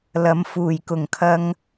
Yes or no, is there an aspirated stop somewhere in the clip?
yes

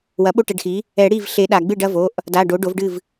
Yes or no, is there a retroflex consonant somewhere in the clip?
yes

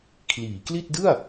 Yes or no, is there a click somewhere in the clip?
no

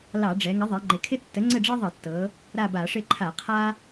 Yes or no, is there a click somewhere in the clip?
yes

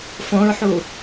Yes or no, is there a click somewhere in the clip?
no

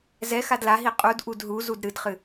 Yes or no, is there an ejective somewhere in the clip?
yes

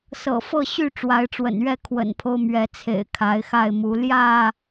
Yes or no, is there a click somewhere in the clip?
no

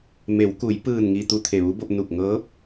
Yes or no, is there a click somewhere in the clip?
no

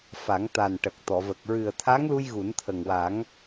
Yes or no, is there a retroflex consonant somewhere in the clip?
yes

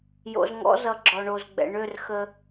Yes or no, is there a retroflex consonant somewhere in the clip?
yes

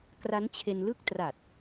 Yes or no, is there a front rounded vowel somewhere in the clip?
no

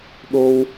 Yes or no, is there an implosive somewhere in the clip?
yes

